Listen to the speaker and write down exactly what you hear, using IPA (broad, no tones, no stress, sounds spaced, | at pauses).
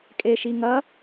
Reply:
kʼ e ʃ i ŋ ɐ